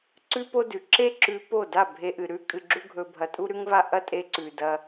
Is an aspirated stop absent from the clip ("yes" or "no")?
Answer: yes